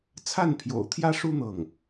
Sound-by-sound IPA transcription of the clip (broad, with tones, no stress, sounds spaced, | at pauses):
t͡sʰ a˥˩ n pʰ j o̰˨˩ ʊ̯ t̪ʰ j ä˥ ʂ u˥ n̪ ɤ˥˩ ŋ